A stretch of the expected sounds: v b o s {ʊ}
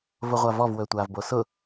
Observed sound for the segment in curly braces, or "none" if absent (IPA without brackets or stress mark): ʊ